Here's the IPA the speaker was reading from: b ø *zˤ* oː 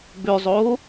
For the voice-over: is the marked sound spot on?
yes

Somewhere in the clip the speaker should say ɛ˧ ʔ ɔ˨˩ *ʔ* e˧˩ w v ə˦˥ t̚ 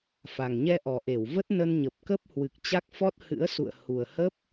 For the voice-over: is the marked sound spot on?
yes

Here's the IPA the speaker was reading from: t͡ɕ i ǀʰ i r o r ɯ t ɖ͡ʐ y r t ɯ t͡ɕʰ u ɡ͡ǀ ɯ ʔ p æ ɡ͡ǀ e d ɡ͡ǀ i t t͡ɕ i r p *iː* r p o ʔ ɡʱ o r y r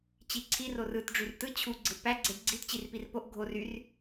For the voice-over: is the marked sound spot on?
no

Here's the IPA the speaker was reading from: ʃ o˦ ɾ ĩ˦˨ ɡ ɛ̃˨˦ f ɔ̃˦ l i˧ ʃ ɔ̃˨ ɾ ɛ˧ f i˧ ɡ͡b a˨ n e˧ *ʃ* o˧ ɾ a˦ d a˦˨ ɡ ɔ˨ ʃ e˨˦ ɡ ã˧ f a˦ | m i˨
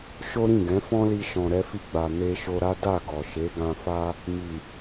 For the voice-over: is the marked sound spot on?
yes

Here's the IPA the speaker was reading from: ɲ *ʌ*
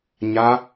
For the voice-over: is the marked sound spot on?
no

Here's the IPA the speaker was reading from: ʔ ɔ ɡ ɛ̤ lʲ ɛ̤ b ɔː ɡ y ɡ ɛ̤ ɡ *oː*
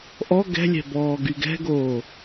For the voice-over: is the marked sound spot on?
yes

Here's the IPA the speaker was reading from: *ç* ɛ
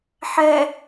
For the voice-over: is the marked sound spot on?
no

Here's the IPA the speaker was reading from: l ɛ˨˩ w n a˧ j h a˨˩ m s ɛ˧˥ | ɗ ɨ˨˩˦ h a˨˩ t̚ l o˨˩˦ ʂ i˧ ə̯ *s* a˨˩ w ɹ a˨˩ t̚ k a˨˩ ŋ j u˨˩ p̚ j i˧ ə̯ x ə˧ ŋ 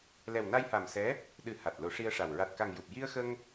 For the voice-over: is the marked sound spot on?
no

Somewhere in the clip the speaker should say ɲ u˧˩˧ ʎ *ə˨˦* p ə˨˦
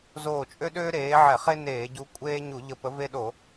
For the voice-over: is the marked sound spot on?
no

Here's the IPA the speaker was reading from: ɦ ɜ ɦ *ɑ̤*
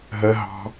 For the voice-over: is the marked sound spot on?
yes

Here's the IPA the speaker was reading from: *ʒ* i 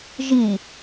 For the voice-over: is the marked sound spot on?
yes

